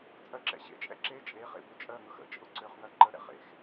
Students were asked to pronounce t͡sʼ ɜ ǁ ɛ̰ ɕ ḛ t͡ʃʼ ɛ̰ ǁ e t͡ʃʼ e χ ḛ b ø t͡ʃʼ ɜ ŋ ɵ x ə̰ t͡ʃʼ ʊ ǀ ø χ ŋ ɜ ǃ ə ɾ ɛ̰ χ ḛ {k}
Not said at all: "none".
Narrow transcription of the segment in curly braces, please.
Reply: x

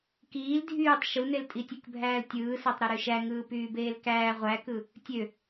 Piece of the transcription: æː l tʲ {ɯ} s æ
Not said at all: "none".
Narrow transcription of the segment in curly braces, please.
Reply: ɯː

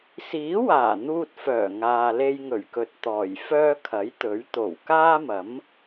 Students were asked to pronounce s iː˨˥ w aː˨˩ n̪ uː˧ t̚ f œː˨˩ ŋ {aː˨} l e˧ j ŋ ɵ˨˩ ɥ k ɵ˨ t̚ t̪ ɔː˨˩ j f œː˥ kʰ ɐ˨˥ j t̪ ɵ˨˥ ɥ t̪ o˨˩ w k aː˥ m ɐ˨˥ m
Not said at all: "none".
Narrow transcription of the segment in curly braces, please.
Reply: aː˨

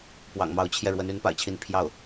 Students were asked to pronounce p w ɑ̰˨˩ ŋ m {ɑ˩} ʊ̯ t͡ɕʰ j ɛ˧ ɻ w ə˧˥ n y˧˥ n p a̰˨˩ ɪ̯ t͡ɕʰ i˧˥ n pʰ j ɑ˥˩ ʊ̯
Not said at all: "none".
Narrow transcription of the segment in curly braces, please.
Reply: ɑ˧˥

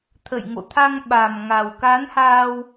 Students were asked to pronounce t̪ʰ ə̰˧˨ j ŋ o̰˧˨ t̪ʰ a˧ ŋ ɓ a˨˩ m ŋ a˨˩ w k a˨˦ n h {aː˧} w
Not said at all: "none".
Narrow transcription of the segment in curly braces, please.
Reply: aː˧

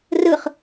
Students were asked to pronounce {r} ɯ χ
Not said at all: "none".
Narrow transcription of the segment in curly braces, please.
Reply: r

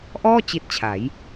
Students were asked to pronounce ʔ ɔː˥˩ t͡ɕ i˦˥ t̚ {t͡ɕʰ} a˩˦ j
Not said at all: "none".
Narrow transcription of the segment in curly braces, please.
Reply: t͡ɕʰ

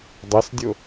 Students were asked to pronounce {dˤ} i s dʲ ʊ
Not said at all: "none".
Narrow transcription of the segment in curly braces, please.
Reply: dˤ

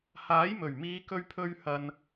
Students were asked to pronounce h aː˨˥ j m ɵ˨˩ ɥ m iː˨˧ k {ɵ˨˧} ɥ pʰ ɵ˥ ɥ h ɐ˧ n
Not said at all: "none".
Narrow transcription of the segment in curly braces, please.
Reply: ɵ˥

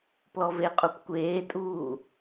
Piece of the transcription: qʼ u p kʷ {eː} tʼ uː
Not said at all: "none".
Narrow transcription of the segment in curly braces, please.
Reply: eː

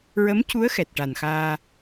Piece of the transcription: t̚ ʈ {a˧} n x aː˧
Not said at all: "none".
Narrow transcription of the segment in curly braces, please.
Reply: a˨˩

